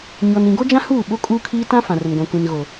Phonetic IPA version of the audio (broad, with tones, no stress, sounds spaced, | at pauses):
ɲ ɔ˨ n ĩ˨ ɡ o˦ d͡ʒ ã˦ h uː˦˨ ɓ o˦ kʼ uː˦ kʰ iː˦ t ã˦ f ã˨ r ʊ˨ n ɡʷ ã˨ kʷ ĩ˨ n ɣ o˨